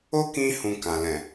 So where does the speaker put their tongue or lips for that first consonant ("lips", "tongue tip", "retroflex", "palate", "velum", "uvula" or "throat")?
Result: velum